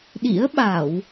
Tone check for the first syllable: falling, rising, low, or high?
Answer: rising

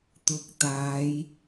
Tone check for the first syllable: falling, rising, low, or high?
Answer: rising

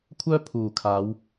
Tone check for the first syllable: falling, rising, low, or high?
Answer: high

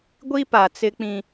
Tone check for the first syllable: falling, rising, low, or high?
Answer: high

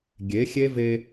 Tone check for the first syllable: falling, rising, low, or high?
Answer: rising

